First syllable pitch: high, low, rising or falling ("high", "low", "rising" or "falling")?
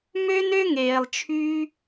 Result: high